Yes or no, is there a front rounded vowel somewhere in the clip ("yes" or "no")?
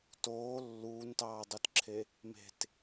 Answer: no